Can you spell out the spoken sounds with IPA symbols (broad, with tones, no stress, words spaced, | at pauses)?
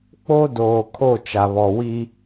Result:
k͡po˦ doː˨ kʰo˦˨ t͡ʃa˨βɔ˨wi˦